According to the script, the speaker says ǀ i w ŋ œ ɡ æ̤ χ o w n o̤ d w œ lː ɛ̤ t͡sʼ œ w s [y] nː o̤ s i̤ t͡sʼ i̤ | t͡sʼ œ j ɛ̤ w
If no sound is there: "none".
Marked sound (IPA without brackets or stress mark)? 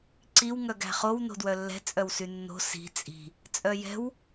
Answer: y